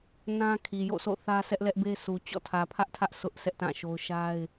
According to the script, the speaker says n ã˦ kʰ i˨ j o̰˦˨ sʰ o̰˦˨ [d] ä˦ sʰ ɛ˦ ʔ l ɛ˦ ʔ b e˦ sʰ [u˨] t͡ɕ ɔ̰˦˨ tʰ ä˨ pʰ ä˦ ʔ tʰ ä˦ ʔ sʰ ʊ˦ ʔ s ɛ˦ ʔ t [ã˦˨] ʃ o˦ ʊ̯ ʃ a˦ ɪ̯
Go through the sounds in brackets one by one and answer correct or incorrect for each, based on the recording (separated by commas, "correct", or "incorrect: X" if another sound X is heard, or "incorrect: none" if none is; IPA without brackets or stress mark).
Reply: incorrect: θ, correct, correct